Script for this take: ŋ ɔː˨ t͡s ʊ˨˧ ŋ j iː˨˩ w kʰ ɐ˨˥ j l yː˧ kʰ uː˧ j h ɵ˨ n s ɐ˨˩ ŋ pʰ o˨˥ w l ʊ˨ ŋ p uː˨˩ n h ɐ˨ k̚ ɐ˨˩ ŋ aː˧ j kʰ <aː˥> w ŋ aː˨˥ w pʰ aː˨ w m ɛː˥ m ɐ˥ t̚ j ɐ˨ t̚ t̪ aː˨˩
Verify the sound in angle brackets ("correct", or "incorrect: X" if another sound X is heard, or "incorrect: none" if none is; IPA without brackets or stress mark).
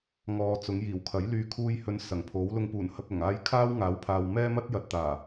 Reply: correct